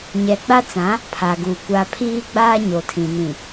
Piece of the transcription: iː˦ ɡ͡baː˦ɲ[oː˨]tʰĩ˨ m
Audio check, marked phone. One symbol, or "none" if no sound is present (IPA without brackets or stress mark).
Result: o˨